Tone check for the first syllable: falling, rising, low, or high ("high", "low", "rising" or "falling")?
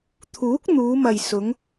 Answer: rising